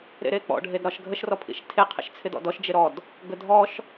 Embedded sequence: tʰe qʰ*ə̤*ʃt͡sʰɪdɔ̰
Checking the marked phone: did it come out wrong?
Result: yes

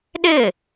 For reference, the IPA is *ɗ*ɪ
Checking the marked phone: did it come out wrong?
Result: no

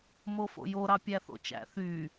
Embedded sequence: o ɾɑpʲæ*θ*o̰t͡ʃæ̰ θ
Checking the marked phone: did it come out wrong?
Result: no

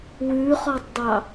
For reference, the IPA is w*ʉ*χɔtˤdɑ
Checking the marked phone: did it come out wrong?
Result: no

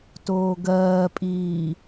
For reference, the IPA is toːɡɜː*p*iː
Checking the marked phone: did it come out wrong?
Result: yes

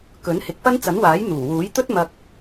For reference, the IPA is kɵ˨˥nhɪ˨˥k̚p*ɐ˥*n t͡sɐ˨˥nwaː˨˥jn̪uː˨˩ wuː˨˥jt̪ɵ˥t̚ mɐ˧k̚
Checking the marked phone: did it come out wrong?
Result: no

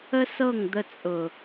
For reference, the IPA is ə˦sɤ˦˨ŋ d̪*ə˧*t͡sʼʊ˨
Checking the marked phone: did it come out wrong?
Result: no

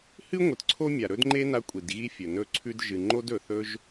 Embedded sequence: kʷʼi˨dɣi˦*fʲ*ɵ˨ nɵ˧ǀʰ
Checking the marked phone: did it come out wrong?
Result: no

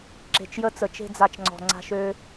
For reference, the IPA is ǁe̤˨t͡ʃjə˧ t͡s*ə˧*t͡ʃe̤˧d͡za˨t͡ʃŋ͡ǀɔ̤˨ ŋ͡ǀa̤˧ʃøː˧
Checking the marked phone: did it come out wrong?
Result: yes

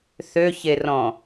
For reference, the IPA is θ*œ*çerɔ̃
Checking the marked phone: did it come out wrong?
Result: yes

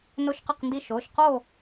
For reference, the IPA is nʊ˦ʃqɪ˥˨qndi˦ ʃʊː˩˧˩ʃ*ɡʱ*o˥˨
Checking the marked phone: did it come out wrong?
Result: yes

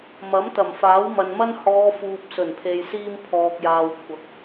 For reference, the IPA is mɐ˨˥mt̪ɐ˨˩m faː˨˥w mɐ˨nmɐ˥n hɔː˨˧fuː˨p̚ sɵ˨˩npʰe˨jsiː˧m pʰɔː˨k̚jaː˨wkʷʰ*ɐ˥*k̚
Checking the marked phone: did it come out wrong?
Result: yes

